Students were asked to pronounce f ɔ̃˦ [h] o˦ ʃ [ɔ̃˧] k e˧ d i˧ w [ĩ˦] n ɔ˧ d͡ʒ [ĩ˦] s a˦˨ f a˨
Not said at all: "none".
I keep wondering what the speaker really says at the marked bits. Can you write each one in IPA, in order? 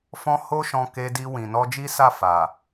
h, ɔ̃˧, ĩ˨, i˦

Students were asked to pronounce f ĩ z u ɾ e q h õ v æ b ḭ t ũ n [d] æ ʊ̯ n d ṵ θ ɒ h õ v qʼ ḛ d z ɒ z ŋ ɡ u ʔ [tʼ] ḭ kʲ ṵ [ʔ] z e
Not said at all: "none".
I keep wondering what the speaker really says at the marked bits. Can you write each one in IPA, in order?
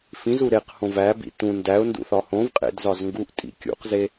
d, tʼ, q

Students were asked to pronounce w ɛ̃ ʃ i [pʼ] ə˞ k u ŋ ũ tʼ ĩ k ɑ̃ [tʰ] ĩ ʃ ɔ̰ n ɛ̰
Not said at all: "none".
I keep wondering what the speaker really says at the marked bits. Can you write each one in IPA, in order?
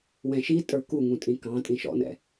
tʼ, tʼ

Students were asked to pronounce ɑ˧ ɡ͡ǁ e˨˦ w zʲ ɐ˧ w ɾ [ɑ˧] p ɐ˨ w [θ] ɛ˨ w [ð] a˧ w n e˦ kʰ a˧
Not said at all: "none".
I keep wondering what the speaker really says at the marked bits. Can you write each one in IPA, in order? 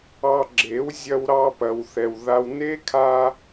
ɑ˧, θ, ð

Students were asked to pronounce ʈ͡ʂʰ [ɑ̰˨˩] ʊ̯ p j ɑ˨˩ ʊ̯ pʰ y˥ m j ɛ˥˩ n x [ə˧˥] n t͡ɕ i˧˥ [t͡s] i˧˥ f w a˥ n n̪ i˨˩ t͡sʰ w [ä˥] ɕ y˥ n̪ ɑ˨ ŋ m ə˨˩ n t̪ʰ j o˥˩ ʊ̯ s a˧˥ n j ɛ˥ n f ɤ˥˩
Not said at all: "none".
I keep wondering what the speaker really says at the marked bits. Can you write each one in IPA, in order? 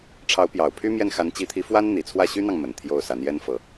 ɑ˧˥, a˧˥, t̪ʰ, ä˥˩

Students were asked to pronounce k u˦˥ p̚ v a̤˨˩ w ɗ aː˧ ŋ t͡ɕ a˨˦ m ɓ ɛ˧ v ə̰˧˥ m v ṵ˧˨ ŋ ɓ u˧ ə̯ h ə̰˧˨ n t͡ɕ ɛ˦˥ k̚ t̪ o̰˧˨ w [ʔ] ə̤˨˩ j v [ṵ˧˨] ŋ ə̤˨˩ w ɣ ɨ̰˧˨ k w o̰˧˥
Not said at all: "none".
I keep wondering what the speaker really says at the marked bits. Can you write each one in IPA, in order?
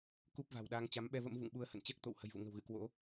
h, ṵ˧˨

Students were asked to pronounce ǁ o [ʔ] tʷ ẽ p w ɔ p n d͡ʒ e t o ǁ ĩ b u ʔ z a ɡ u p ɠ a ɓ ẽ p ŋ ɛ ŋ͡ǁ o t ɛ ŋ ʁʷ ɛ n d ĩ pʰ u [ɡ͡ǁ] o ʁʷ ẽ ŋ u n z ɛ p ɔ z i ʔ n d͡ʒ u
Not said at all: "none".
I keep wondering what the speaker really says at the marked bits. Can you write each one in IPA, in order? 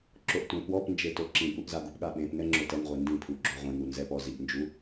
ʔ, ɡ͡ǁ

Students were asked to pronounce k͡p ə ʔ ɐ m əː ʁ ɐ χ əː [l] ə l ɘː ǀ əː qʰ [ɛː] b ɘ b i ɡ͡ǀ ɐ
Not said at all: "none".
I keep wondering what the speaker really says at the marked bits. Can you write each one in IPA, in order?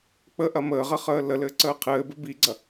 l, ɘː

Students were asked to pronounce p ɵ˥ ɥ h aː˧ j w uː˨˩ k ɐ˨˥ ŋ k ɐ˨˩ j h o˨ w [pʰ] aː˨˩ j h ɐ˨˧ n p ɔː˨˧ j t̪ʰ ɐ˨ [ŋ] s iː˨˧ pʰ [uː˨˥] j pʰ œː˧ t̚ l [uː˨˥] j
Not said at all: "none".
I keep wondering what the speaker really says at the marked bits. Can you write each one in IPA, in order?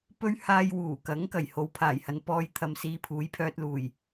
pʰ, m, uː˨˥, uː˨˩

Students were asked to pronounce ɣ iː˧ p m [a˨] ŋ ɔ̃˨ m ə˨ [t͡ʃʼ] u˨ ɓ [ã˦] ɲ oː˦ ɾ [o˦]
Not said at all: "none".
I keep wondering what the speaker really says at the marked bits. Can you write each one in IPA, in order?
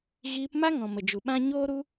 a˦, d͡ʒ, ã˦, u˦

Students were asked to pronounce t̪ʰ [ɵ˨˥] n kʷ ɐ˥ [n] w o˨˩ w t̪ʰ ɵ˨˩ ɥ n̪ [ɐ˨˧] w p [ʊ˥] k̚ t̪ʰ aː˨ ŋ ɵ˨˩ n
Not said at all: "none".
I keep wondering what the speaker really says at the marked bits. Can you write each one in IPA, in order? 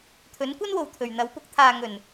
ɵ˨˥, n, ɐ˨˧, ʊ˧

